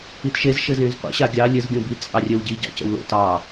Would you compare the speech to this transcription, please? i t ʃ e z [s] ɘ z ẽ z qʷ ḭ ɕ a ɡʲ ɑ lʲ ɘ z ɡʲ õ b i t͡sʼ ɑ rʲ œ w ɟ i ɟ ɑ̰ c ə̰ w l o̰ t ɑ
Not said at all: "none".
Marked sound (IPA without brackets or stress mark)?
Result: ʃ